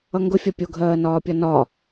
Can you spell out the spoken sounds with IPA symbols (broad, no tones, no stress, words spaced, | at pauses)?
ʌŋɡʊfʲɒ pʲʊɡʱɜːnɒːpʲʌ nɒ